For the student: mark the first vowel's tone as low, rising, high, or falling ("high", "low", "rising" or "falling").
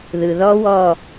low